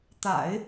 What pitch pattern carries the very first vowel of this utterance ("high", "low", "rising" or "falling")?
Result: low